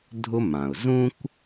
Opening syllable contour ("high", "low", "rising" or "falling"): high